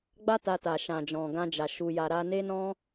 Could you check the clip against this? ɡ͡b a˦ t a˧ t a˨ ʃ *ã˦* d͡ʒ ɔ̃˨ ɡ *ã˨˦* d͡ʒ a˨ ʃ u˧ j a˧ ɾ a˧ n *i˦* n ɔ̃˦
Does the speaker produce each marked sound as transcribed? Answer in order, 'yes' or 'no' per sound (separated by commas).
no, no, no